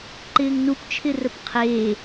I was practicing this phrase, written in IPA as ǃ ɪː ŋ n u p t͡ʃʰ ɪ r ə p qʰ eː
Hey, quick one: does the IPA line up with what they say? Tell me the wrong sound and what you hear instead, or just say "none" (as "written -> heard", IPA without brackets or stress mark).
none